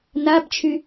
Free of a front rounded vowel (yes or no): no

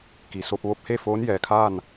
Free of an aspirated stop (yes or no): no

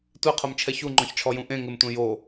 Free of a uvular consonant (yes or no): no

